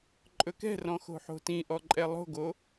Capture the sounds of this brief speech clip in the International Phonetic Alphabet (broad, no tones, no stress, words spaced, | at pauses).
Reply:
ǃʼɵkɛ̤rɔ̃ xo̤ħo̤tĩʔɔ ǃʼɛlˠo̤ɡo